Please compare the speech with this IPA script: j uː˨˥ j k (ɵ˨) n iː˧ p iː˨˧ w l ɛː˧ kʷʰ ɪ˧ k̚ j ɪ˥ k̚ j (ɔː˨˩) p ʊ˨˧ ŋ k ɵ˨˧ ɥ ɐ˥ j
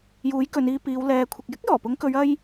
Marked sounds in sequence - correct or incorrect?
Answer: incorrect: ɵ˨˧, correct

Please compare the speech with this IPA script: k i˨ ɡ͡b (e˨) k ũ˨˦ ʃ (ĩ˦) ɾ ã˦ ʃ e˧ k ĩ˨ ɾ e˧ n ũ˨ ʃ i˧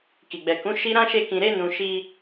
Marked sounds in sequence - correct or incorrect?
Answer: incorrect: ɛ˨, incorrect: i˦

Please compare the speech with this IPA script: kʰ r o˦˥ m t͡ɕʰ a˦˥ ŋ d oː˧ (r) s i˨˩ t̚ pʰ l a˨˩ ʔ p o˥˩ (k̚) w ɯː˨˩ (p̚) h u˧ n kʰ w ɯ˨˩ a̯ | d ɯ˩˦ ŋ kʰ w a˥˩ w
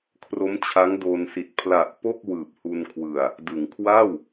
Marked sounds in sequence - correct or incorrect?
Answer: incorrect: n, correct, correct

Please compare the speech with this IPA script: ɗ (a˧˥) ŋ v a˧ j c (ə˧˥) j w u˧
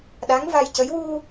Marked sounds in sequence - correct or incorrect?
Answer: correct, correct

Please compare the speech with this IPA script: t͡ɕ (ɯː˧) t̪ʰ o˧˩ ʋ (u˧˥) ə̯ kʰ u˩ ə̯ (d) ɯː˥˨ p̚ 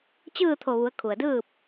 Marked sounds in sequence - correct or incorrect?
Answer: incorrect: ɯː˥˨, incorrect: u˩˧, correct

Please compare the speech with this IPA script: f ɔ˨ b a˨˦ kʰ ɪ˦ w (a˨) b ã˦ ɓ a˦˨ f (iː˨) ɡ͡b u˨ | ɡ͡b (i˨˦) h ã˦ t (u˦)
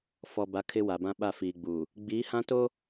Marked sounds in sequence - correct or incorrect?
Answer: correct, correct, correct, incorrect: o˦

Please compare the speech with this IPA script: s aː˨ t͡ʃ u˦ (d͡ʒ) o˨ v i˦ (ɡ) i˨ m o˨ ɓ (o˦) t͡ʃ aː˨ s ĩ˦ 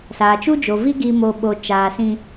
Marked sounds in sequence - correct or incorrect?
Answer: correct, correct, incorrect: o˨

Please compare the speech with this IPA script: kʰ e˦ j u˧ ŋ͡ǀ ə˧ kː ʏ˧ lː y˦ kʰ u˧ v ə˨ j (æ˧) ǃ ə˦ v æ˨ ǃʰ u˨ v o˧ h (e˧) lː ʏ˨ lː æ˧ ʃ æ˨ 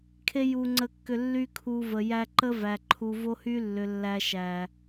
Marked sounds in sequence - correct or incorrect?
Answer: correct, incorrect: y˧

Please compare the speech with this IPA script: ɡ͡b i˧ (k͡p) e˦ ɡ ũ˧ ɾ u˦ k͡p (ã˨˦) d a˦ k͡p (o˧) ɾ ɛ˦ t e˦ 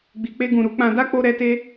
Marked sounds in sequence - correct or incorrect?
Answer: correct, incorrect: ã˧, incorrect: o˦

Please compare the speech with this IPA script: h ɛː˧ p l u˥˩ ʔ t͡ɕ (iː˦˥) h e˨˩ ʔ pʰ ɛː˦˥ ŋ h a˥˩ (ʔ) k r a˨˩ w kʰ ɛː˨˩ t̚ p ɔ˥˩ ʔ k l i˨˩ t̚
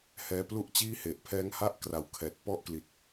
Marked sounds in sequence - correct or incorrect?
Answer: incorrect: iː˥˩, correct

